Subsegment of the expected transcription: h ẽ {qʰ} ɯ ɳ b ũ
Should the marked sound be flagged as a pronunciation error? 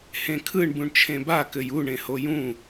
yes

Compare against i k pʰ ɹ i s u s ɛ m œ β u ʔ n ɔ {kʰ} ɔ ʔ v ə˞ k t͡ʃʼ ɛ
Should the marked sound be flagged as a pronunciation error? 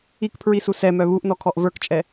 no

